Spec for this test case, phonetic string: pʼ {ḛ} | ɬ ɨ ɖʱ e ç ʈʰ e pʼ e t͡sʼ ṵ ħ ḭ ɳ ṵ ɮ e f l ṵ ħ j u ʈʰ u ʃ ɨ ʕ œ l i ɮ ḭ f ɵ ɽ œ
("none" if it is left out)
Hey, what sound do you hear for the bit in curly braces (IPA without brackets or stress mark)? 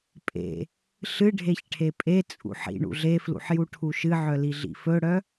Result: ḛ